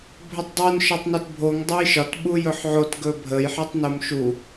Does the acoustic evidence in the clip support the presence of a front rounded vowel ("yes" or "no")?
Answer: yes